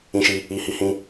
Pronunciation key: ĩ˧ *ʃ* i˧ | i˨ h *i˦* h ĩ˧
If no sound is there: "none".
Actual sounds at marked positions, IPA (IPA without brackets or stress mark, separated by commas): ʃ, i˨˦